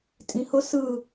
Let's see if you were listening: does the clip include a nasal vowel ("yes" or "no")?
yes